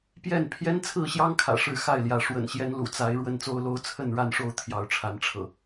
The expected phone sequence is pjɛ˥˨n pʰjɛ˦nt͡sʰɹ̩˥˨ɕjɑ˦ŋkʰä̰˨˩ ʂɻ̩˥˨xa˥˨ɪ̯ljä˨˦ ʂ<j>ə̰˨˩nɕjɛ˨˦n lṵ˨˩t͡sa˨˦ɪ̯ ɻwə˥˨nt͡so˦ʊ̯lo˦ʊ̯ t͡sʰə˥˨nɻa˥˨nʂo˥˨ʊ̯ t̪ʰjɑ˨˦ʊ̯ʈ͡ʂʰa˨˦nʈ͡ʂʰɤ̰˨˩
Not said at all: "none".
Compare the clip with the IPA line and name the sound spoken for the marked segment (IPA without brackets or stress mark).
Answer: w